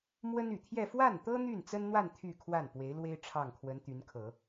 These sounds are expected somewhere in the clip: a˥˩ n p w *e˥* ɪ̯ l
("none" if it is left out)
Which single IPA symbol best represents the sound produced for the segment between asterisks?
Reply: e˧˥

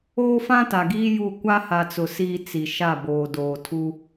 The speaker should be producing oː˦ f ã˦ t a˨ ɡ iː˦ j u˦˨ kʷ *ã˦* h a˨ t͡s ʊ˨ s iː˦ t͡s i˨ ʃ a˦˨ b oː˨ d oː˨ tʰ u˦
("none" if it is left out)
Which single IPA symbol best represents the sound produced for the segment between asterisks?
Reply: a˦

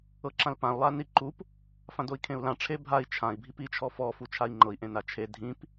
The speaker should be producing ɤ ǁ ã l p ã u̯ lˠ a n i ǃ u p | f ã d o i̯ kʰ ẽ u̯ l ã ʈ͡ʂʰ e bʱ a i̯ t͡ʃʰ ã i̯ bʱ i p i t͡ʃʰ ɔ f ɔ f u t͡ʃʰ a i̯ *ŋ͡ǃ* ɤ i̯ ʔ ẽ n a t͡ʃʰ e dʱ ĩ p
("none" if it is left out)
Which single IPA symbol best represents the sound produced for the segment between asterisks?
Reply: ŋ͡ǃ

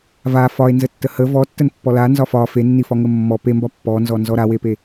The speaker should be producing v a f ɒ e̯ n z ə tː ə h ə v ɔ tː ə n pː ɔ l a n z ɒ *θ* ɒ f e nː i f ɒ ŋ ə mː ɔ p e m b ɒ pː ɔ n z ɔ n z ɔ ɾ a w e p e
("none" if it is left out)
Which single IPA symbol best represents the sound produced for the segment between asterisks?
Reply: f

